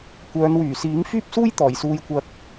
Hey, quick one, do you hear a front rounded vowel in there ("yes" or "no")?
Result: yes